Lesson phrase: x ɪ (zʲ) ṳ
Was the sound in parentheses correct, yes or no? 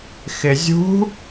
yes